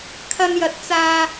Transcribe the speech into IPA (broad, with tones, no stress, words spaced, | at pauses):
kʰɐ˧njɐ˨˥t̚t͡saː˧